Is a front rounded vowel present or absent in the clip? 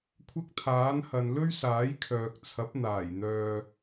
present